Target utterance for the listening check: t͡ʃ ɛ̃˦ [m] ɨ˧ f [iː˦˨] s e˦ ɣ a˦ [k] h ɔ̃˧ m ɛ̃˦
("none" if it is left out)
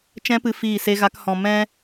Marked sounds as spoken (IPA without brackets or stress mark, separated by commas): p, iː˦˨, k